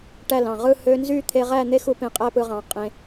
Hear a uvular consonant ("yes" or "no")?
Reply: yes